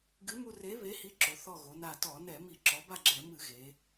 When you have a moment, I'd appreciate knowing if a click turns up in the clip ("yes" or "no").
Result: yes